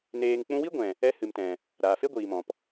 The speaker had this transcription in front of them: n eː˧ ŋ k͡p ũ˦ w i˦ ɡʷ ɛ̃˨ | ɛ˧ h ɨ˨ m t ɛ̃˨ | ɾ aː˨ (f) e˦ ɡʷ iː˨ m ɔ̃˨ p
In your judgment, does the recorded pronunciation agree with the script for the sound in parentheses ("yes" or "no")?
yes